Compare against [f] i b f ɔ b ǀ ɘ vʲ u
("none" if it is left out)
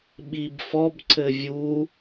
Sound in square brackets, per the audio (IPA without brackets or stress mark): ɓ